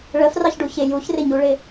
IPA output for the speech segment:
ɭ ə f r ɑ ç ɖ u ç ɪ j u ç r ɪ ɲ u ɭ ɪ

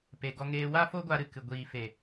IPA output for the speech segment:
p e˧ ɡ ɔ˦ ŋ eː˦ w a˦ f o˦ ɡʷ a˧ ɾ ɨ˨ k ɨ˨ ɡʷ iː˨ f e˨

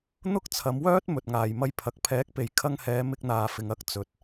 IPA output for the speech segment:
n̪ ʊ˥ k̚ t͡sʰ ɐ˨˧ m w œː˥ t̚ m ɵ˨ t̚ ŋ aː˨ j m ɐ˧ j pʰ ɐ˨ k̚ pʰ ɛː˨˥ k̚ p e˨ j kʰ ɐ˧ ŋ h ɛː˨˧ m ɪ˧ k̚ n̪ aː˨ f ɪ˨ ŋ ɐ˥ k̚ t͡s ɵ˨ t̚

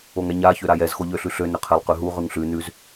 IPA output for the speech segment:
o ŋ ɛ ɲ a ç ø ɾ a j ɛ z x o ʎ ø ɬ ʉ ɬ ø n ʏ qʰ ɛ lˠ q ʉ ɦ u ʁ ʉ ŋ ɬ ʉ n ʉ z

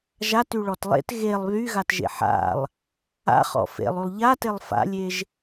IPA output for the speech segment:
ʒ a t y ɭ ɔ t lˠ ḛ t ɣ e lˠ β y ɣ a t ʒ ḛ ħ a̰ lˠ | a̰ χ ɔ̰ f ḛ lˠ y lˠ ʎ a t e lˠ f a̰ lʲ e ʒ

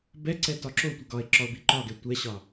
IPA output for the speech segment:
b ɛ ǀ ɛ t ɒ ǁ o tʷ ɘ ɡ ɒ e̯ ǁ ɒ o̯ b i ǃ ɒ ɡ ɛ tʷ ɛ ɕ ɒ

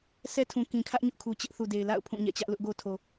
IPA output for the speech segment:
s ɛ˦ tʰ ũ˨ k ĩ˨ kʰ ä˦ ʔ ɲ ʊ˦ ʔ kʰ u˨ t͡ɕ ɪ˦ ʔ θ u˨ d e˨ ɪ̯ l a̰˦˨ ʊ̯ pʰ ũ˦˨ ɲ ɛ̰˦˨ t͡ɕ ä˦ ʔ l ʊ˦ ʔ ɡ o˦ tʰ o˨

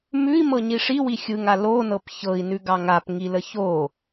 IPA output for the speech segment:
m ʉ i̯ m ɤ ɲ i ʂ i w i xʲ ɯ ŋ a l o n ɤ p ç ɤ i̯ n ʉ ɡ ɑ ŋ a p ŋ i l ə ç o

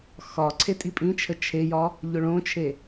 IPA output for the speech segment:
x ɒ ǀʰ e tʼ i pʼ ĩ t͡ʃʰ ə t͡ʃʰ e j ɒ | ʎ ʊ ɭ õ t͡ʃʰ e

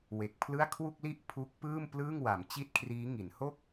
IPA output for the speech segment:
w e˨˩ k̚ pʰ l ɯ˥˩ a̯ kʰ w u˥˩ k̚ l i˥˩ ʔ pʰ u˦˥ k̚ p ɯː˥˩ m p l ɯː˥˩ ŋ w a˩˦ m t͡ɕ i˥˩ t̚ kʰ r iː˦˥ ŋ i˩˦ n h o˥˩ k̚

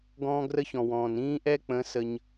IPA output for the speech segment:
ɡ ɔ̃ː˦ ɡ r ə˦ ç ɔ̃˨ w ɔ̃ː˨ n ĩː˦ ʔ ɛ˦ k͡p ə̃˨˦ s ə˦ ɲ

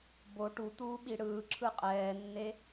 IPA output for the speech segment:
b o ʈ u t̪ uː ɓ i ɽ ɯː ǁʰ ɯ qʼ ɛː nː e

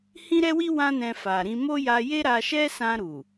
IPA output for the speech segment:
h ĩ˦ ɾ ɛ˦ w i˦ w ã˦ n ɛ̃˧ f a˨ ɾ ĩ˧ m o˦ j a˧ j e˦ ɾ a˧ ʃ ɛ˦ s ã˧ ɾ u˨

